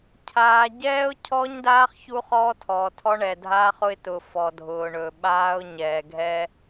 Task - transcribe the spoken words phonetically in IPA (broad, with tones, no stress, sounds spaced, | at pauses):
cʰ aː˨ ɟ ɛː˦ ʊ̯ cʰ ɔ˦ ɲ d aː˦ χ ç u˦ χ ɔː˦ tʰ ɔː˨ tʰ ɔ˦ ɳ ɛ˨ dʱ aː˦ χ ʊ˦ ɪ̯ t ʊː˨ f ɔ˨ dʱ ʊː˨ ɳ ɵ˨ ɓ aː˦ ʊ̯ ɲ ɛː˨ ɡʱ ɛ˦